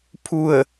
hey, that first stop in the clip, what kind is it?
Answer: aspirated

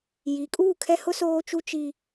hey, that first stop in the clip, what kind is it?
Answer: ejective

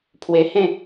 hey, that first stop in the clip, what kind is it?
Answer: aspirated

